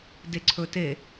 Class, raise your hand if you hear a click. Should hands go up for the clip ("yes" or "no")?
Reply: yes